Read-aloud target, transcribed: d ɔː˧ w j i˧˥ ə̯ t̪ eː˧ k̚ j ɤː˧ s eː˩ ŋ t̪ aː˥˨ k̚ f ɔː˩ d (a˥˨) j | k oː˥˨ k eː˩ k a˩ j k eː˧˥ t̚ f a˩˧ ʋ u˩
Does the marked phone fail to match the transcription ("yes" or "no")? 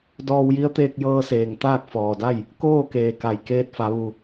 no